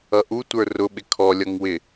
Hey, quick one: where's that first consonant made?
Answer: throat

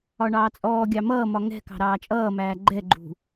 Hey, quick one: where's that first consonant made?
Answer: retroflex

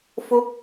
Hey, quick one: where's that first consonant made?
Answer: lips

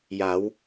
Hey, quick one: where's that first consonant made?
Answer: palate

